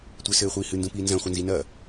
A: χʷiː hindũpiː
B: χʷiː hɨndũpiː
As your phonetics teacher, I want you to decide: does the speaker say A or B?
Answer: B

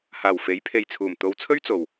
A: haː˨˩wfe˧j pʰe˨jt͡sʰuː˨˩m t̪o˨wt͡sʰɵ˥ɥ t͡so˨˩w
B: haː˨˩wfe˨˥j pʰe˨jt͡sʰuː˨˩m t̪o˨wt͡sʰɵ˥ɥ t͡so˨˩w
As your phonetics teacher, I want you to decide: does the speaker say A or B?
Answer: B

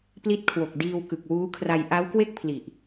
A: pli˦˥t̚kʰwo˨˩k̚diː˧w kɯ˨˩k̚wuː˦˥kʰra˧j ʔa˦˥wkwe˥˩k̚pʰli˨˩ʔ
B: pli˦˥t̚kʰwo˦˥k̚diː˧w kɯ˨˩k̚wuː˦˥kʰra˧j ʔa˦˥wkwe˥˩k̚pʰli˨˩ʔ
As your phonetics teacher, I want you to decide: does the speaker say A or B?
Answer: A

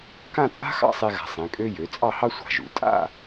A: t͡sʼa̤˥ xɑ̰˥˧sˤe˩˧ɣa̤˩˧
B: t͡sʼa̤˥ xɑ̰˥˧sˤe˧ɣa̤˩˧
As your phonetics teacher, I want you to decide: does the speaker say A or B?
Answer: B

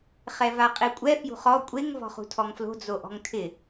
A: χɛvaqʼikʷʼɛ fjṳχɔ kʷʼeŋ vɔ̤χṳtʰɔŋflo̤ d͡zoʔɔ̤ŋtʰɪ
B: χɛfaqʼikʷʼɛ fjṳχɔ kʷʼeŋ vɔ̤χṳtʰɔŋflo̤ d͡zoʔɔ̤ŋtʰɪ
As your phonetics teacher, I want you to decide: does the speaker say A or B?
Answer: A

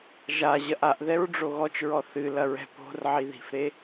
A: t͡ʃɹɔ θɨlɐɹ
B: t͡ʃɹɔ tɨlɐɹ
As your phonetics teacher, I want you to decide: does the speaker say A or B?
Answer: A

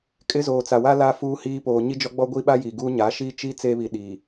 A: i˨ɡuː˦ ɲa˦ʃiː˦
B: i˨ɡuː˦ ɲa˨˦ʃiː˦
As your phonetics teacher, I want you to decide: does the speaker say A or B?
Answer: B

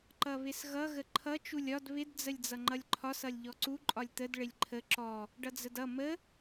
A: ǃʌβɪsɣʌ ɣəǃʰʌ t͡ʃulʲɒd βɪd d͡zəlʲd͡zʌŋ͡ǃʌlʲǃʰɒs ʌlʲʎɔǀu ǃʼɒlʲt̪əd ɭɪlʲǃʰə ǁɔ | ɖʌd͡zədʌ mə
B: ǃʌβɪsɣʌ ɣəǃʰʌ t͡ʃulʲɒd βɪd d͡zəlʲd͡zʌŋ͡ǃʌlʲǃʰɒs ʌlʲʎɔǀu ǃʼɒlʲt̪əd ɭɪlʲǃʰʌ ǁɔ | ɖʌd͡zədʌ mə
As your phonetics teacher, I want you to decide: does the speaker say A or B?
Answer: A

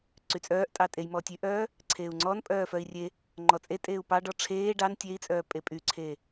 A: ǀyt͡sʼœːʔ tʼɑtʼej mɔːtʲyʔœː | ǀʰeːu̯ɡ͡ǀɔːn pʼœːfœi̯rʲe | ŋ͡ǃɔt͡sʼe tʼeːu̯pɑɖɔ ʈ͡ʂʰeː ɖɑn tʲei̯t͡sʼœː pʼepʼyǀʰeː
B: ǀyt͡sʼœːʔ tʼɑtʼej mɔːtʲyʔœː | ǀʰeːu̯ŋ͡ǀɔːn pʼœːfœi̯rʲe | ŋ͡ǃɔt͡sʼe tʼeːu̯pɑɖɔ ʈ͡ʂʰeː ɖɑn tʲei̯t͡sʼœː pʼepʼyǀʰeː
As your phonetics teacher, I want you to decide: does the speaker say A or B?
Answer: B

